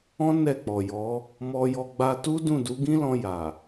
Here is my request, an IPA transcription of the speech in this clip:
ɔ̃˦ n ɛ˦˨ k͡p ɔ˨ j ɔ˨˦ | m ɔ˧ j ɔ˧ ɡ͡b a˧ t u˦ d ũ˦˨ d u˨˦ ɡ ĩ˦ l ɔ̃˧ j a˨

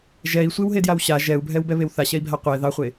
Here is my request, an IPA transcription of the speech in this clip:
ʒ ɛ i̯ sʷ e w ɦ e d j a w ɕ a ʒ ɛ u̯ bʱ ɛ w b ɛ β e w θ a ɕ ɛ i̯ bʱ a qʷ ɛ ð ɑ χʷ e

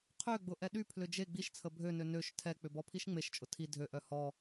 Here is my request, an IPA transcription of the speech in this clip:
qʰ ø ɡ͡b ʊ ʔ ɛ ɗ y pʰ l ʏ d͡ʒ e ɡ͡b i ʃ t͡sʰ ə bʱ ø n ø n ø ʃ tʰ ɛ k͡p ʏ b ɔ pʰ i ʃ ŋ͡m e ʃ t͡ʃʼ ʊ tʰ i dʱ ø ʔ œ h ɔ

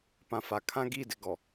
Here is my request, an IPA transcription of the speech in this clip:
p ã˨ f a˨ kʰ ã˦ ɡ i˦˨ d ɪ˨ ɡ ɔ˨

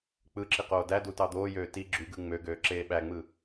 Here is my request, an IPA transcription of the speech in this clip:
k͡p ɯ ǁ i q oː d æ d u t ɑ d̪ oː j øː t i ɡ͡ǁ y ɡ ɯ ŋ͡m ø ɡ øː ǁ eː ɓ æ ŋ͡m ɯ

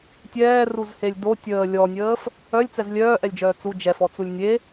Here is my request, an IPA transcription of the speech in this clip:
tʲ ɛː r u z h e lʲ d o tʲ əː lʲ ɔ nʲ əː f | œ lʲ t͡s ɛ z lʲ œː ʔ ɛ lʲ d͡ʒ œː t͡s u d͡ʒ ɛ f ɔ t͡s u lʲ nʲ e

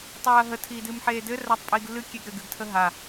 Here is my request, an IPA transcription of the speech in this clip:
tˤ iː ɐ̯ ɦ ə tʰ iː d ɨː m ħ eː d ɘ r a tˤ pʼ iː ɡ lː ɨ kʲ e ɡ ɾ ɘ ɡ ɨ ɡ tʰ ə ɦ a

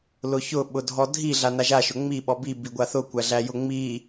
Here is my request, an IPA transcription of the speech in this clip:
l ʊ ç ʊ ɓ ʊ dʱ ɔ dʱ i ɮ a n a ʒ a ʃ ʊ ŋ͡m i ɓ ɔ b i b i ɡʷ a θ ʊ kʷ æ ɮ æ j ʊ ŋ͡m i

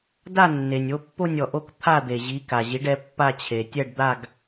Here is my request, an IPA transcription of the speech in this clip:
d a˥˧ nː e˩ nʲ o˨˦ pː o˥˧ nʲ ɔ˩ ʔ o˥˧ k t̪ʰ a˥˧ d̪ e˩ ʑ i˨˦ k a˩ ʑ i˨˦ ɖ ɛ˨˦ pː a˥˧ t͡ɕʰ e˩ tʲ ɛ˥˧ ɖ d̪ a˥˧ ɡ

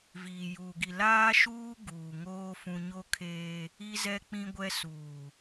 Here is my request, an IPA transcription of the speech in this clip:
v iː˨ j uː˨ ɡ i˨ l aː˦ ʃ uː˦ ɡ uː˨ ŋ oː˦ f ũ˦ ɲ o˦ kʰ eː˦ | i˦ z ɛ˦ k͡p ĩ˦ ɡʷ ɛ˦ s uː˨

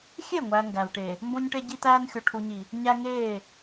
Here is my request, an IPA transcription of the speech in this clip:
xʲ e˦˨ ŋʷ æ˨ ŋ ɡ æ˨ v ʈ e˨ | m b õ˦ ɲ ʈ e˦ ɟ i˦ t æː˦ n xʲ o˨ ʈʰ u˨ ɲ i˨ | ɲ æ˦ ŋ eː˦˨

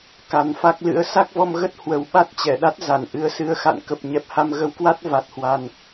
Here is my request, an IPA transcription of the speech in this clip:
k a˨˩ n f a˦˥ k̚ l ɨ̰˧˥ ə̯ s a˦˥ k̚ v ɔ˧ m ɣ ə˦˥ t̚ h w ə˨˩ w ɓ a˦˥ t̚ t͡ɕ ɛ˧˩ ɗ a˦˥ t̚ z a˧˩ n ʔ ɨ˨˦ ə̯ s ɨ˨˦ ə̯ x a̰˧˨ n k ə˨˩ p̚ ɲ ɛ˨˩ p̚ h a˧ m ɣ ə˨˦ w k w a˦˥ t̚ v a˨˩ t̚ h w a˨˩ n

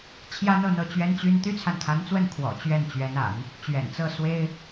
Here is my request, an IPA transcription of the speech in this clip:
t͡ɕʰ j ä˥ n̪ ɤ˥˧ n̪ ɤ˥˩ t͡ɕ ɥ ɛ˥ n t͡ɕ y˥ n t̪ y˥ t͡sʰ a˨ n kʰ a˧˥ n t͡s w ə˥˩ n kʰ w ɔ̰˨˩ t͡ɕ ɥ ɛ˥˩ n t͡ɕ ɥ ɛ˧˥ n a̰˨˩˦ n | t͡ɕ ɥ ɛ̰˨˩ n t͡s ɤ˥˩ s w e˥ ɪ̯

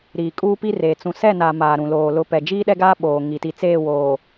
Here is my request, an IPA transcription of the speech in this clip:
ɾ iː˨ kʼ uː˦ p i˦ r eː˨ t͡s ũ˨ s ɛ˦˨ n a˨ m aː˨ ɾ ũ˨ l oː˨ l ʊ˨˦ p ɛ˨ d͡ʒ iː˦ ɗ ɛ˦ ɡ aː˦ ɓ oː˨ ŋ i˨ t i˨ t͡s eː˦˨ w oː˨

